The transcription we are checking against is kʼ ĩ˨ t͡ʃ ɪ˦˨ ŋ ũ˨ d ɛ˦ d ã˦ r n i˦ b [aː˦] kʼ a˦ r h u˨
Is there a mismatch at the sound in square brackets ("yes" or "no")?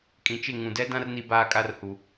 no